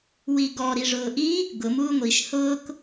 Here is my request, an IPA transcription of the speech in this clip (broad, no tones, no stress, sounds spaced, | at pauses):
w i ɡ ɔ ɾ i ʐ ʊː ʔ i | ɡ ʊ m uː ŋʷ i ʃ h ʊː k